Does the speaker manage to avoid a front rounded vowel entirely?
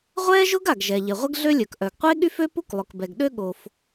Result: no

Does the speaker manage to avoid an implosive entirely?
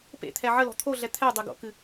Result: yes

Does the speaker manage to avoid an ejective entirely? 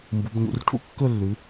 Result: yes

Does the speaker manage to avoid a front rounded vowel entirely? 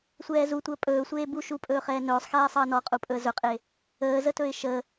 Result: yes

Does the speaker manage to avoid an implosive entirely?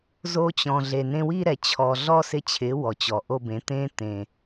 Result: yes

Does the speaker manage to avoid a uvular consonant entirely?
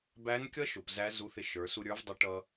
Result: yes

